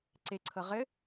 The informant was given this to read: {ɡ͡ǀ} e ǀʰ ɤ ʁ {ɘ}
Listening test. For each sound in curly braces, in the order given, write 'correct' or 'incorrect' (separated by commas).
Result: incorrect, correct